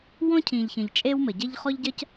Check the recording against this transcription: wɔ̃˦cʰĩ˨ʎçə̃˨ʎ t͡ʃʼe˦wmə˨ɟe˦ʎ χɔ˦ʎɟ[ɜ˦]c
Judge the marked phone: correct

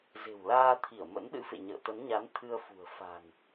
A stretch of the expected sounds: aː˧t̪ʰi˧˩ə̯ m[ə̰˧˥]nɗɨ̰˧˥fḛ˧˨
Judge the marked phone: correct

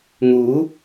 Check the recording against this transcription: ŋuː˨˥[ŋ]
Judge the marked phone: incorrect: none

